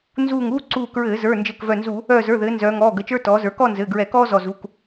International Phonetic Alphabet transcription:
nzuː˧˩ŋuː˥ ǀuː˧˩kɹɘː˧˩˧zə˞˩˧˩ nd͡ʒɘː˧˩kvœ˧˩nzu˧˩˧ | œː˧˩zə˞˩˧˩ðɘː˩˧ nzœː˩˧ŋɔː˩˧˩ɡə˩˧˩t͡ʃə˞˥ tɔː˩˧zə˞˩˧kɔ˥˧ nzɘː˩˧˩ɡɹɛ˧˩˧kɔː˥ zɔ˧˩zu˩˧˩k

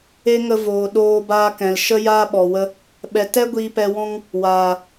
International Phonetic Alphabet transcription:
e˦ŋə˧voː˨ ɗoː˧baː˧kɛ̃˨l ʃə˦ jaː˦ɓɔ˨wə˦ | ɓɛ˨tɛ˦ ɡʷiː˧pɛ˧wɔ̃˦ŋ | waː˨

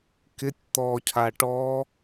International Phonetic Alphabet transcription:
kɪtʲ t̪ɔcʰa ʈɔ

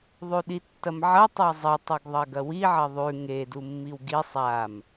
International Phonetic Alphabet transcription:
ðˤʉɗitːɐmʕɐ tˤazˤɐ tˤuɡðˤɐɡɐwi ʕɐðˤʉ ŋe dumːiwɡi sˤam

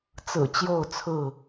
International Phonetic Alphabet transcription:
t͡sɹ̩˨˩ t͡ɕjo˥˨ʊ̯t͡sʰɹ̩˥˨

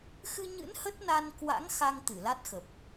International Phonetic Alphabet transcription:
xɨ˧ɲɨ̰˧˥n hə˦˥t̚na˧nkwa̰˧˥ŋ xa˧ŋ t̪ɨ˧˩la˦˥t̚xə˨˩p̚

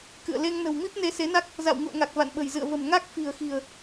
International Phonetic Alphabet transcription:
kɨ̰˧˨ə̯ le˧ŋnə̤˨˩w mi˦˥p̚ne˧se˨˦na˦˥k̚ | za̰˧˨wŋṵ˧˨ə̯ŋa˨˩k̚ va̰˧˨nɓə̤˨˩jzɨ̰˧˨ə̯və̤˨˩m ŋa˦˥k̚ fi̤˨˩ə̯xi̤˨˩ə̯

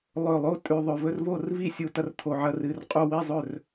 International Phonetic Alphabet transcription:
lˠɵ˧˩lˠo˥˨ tʼʉ˧˩ðˤɵ˧˩vɵ˥˨rvo˥˨r vi˥˨sʲu˧˩ tɐ˥˨rtʰo˧˩ʕɐ˥˨ rɨ˧˩rqʼu˥˨ wi˥˨zˤɵ˥˨r

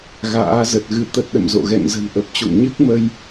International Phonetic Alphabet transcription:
ɣa̰ː˧˥zə˨˩t̚ ɣɨ˧t̪ə˦˥t̚ɗə̰˧˨mzo̰˧˨ ɣɛ̰˧˨ŋzə̤˨˩nʔə˨˩p̚t͡ɕo̰˧˨ŋ ɲɨ˦˥k̚mə˧j

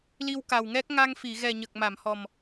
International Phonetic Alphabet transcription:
li˧wka˨˩wŋɛ˦˥k̚ ŋa˧ŋfi˨˩˨ ɣɛ˨˩ɲə˨˩k̚ ma˨˩˨mhɔ˨˩m

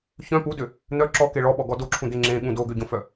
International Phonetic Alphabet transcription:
çœ̃ pudø | n̪œ ǁɔke ɭɔɓɔɡɔ doǁʰũd̪e ŋ͡ǁẽɠũ doɡøɟõfœ

